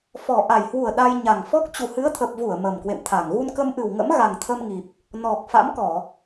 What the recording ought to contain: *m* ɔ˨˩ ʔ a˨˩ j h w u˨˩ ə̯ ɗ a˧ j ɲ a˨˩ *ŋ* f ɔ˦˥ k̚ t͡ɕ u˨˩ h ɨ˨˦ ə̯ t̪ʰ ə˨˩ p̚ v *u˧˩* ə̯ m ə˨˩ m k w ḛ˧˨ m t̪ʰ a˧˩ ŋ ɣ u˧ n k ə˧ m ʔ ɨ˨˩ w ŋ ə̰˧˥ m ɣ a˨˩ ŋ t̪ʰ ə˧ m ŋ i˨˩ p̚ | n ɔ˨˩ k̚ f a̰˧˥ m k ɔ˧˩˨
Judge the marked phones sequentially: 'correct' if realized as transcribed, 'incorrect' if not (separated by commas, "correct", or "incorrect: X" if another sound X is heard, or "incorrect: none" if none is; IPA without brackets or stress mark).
incorrect: f, correct, correct